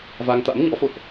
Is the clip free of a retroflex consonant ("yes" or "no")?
yes